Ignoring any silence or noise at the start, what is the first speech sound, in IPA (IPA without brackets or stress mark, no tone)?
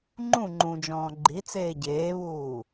ŋ͡ǃ